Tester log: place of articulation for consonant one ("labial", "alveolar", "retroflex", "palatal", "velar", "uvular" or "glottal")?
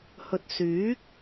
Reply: glottal